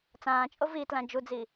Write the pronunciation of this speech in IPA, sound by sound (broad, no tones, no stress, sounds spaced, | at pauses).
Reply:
t͡s ãː t͡ʃʼ o v i t l ã d͡ʒ u d͡z i